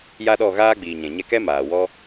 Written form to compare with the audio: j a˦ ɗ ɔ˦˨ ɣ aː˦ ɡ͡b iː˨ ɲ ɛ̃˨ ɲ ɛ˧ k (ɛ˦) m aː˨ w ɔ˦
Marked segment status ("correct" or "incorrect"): correct